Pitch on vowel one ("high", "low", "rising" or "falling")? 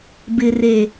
low